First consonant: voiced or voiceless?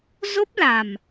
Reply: voiced